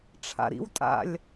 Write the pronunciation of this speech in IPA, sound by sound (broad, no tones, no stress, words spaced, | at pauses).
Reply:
ʈ͡ʂʰa̰ɾḭwtʼa̰lʲ